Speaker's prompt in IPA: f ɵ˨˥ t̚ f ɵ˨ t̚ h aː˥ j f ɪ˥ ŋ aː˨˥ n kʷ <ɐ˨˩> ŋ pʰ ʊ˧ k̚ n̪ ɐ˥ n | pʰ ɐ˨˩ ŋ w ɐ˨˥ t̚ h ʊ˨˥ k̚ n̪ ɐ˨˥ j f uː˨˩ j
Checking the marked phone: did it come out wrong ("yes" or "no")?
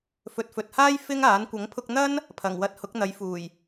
yes